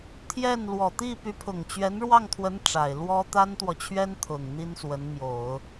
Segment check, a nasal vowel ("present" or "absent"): absent